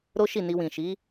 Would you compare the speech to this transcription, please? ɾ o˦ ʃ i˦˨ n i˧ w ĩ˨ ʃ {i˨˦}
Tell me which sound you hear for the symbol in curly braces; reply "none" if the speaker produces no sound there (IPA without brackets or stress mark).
i˨˦